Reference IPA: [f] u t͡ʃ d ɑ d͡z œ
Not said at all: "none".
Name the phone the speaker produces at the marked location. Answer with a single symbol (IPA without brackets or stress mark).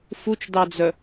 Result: f